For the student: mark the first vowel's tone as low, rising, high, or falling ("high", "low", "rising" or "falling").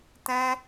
high